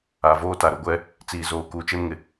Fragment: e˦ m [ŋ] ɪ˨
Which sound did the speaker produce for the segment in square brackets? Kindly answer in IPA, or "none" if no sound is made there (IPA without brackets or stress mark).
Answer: ŋ